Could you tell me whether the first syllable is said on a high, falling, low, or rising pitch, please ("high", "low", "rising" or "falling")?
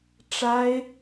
high